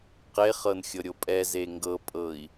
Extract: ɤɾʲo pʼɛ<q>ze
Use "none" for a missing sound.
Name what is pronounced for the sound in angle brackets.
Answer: none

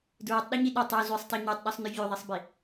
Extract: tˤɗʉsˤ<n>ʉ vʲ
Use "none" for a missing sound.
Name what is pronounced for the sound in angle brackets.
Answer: n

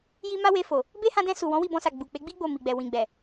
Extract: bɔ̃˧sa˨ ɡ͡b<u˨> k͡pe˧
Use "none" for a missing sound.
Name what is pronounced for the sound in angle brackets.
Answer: u˨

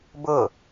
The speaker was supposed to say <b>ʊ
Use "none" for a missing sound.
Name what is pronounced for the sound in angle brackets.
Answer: b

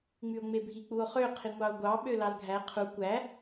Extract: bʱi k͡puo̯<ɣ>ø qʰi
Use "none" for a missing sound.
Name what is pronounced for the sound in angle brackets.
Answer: χ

